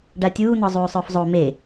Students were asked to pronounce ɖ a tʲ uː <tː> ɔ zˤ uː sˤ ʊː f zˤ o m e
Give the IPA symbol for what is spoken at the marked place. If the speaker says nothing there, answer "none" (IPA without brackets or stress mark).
n̪